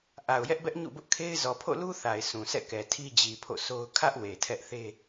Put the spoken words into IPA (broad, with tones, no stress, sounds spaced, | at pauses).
ʔ a˨ ʊ̯ j ɛ˦ ʔ b ɛ˦ ʔ ɲ ṵ˦˨ b ʊ˦ ʔ kʰ e˦ ɪ̯ z ɔ˨ pʰ o̰˦˨ l u˦ θ a˨ ɪ̯ sʰ ũ˨ s ɛ̰˦˨ k ɛ˨ tʰ i˦ d͡ʑ i˨ pʰ o̰˦˨ s o˦ ʊ̯ kʰ ä˦ ʔ w e˨ tʰ ɛ˦ ʔ θ e˦